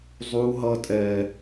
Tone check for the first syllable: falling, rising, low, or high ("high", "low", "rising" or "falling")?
high